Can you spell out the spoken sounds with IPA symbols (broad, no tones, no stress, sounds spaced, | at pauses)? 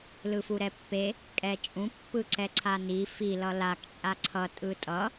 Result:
l ɯ f u ɾ ɛ pː e | kʼ ɛ t͡ʃʼ ũ pː ɯ ǀ ɛ ǀʰ a n i f i l ʌ l a k t͡ʃʼ a ǀʰ ʌ tʼ ɯ tʼ ʌ